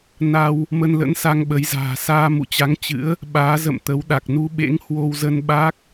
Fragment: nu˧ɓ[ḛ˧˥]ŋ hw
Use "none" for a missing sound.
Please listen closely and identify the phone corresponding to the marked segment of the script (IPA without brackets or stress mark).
ḛ˧˥